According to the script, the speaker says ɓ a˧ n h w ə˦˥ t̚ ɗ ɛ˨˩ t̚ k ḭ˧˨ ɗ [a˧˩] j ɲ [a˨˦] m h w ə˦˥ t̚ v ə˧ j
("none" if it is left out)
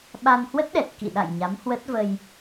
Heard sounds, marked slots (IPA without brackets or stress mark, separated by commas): a̰˧˨, a˨˦